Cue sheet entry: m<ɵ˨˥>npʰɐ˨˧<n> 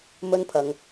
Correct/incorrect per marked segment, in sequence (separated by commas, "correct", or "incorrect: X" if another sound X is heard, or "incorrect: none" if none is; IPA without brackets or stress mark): incorrect: ɵ˥, incorrect: ŋ